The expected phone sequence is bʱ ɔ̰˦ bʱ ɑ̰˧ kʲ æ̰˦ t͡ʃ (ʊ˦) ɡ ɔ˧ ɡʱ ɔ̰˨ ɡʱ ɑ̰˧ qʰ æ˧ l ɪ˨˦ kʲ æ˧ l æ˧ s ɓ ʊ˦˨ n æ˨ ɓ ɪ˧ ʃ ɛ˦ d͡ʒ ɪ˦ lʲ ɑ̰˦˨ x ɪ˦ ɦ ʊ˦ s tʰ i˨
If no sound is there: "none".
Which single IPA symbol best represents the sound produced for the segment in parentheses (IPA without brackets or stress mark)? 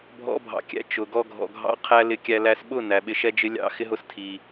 ʊ˨